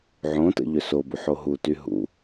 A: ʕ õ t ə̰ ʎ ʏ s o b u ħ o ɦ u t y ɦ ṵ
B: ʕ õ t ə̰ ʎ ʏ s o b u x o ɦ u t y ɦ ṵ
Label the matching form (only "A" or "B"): A